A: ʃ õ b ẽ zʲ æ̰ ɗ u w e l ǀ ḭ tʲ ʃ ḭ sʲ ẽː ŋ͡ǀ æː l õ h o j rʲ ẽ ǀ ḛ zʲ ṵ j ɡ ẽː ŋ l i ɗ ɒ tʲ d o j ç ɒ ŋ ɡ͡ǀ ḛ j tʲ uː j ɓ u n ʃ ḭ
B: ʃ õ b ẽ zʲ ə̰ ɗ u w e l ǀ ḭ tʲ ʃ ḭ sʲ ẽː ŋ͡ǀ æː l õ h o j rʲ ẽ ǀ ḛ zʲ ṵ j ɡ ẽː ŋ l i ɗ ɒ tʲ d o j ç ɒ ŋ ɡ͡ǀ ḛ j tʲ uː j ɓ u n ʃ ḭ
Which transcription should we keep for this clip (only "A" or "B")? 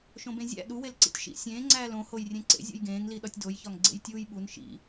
A